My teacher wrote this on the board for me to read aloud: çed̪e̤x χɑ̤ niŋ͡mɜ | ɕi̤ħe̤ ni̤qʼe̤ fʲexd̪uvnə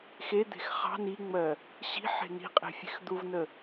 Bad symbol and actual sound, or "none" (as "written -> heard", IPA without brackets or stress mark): ç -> x